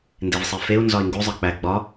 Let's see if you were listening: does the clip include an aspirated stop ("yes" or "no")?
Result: no